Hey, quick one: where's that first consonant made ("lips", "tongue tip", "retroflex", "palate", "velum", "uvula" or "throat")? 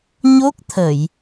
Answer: palate